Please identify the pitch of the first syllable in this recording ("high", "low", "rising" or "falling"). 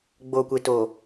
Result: low